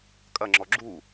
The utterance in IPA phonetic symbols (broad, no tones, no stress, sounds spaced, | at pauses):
kʼ ɐ ŋ͡ǁ ɔ ɡ͡ǁ u